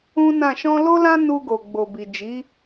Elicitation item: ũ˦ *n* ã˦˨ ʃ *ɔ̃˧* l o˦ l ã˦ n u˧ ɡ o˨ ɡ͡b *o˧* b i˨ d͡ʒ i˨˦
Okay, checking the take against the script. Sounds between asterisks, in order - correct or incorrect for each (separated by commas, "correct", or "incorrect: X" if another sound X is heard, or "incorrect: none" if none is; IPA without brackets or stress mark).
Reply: correct, correct, incorrect: o˨